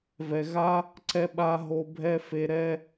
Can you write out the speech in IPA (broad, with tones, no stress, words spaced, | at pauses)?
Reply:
vɛ˨ɣa˦ | ǀɛ˧ɓa˧ ɦo˧bʱɛ˦ fe˧ɾɛ˦